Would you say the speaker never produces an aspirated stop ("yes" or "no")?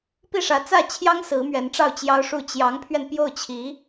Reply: no